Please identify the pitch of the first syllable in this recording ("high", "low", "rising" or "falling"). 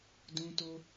high